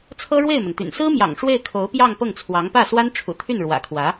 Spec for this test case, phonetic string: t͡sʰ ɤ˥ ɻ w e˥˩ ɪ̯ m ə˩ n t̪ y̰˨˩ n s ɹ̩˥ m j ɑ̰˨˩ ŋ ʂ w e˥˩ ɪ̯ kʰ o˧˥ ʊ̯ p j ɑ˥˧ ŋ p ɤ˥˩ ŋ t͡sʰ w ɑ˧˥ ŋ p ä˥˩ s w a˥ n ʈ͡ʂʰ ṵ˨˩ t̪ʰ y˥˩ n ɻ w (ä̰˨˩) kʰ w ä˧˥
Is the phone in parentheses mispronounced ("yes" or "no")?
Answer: no